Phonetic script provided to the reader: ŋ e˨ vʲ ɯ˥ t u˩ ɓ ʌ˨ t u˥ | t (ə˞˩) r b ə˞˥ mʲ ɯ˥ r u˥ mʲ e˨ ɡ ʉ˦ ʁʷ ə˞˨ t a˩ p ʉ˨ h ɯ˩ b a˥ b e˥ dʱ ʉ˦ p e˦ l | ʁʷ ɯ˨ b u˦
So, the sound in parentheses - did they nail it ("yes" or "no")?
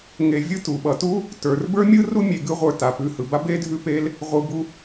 yes